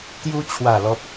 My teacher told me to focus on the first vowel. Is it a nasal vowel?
no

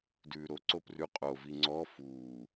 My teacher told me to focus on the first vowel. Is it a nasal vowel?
no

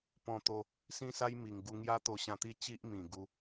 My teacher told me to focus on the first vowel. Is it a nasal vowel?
yes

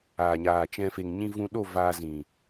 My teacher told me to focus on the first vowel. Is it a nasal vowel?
no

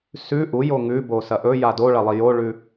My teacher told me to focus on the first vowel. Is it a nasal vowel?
no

